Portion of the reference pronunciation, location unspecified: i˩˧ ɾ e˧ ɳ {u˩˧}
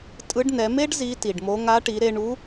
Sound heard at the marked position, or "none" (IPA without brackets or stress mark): u˧˥